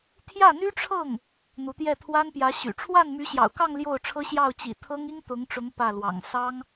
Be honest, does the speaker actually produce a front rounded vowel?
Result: yes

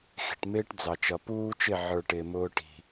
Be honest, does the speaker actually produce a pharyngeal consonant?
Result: yes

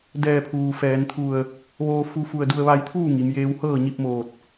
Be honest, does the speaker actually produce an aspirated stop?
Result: yes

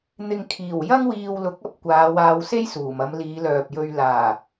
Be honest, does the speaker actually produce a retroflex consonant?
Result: no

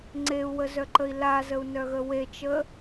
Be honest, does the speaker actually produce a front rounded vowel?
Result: yes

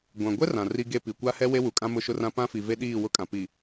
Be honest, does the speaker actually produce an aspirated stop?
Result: no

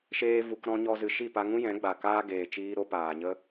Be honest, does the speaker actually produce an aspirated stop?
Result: no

